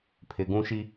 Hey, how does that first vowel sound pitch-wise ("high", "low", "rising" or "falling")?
low